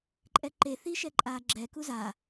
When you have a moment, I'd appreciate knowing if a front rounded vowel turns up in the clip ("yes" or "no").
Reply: no